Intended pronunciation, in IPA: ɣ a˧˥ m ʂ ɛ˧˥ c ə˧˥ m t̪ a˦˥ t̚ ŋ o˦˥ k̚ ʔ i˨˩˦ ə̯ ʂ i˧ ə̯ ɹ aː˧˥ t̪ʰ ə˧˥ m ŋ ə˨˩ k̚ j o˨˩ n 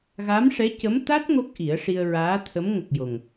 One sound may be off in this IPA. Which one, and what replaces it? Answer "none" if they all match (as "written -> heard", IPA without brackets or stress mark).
n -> ŋ